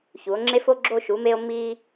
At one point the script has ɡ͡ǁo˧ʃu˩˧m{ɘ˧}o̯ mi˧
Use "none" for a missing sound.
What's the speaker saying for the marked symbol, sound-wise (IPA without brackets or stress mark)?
e˧